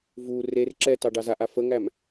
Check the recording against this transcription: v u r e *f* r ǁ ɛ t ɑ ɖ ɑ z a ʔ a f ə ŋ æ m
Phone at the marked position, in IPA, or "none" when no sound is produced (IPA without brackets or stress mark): none